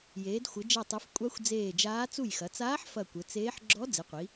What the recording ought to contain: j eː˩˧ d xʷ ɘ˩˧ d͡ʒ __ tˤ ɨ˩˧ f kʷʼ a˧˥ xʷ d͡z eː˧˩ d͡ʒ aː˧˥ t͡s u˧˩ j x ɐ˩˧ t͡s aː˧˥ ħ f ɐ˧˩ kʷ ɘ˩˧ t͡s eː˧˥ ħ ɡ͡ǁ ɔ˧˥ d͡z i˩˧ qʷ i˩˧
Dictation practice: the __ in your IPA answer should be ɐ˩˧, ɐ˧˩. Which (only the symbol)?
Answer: ɐ˧˩